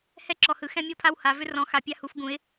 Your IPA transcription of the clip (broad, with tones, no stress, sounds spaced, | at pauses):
h ɛ˥ ǁ ɔ˥ h ɯ˥ x ɛ̃˥ mʲ ɤ˥ pʰ a˥ w h a˧˥ v ʏ˥ r ɔ̃˧˥ x a˧˥ pʲ a˥ h u˧˥ f ɡ ũ˧˥ ɪ̯